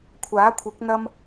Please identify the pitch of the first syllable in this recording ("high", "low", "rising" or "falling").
rising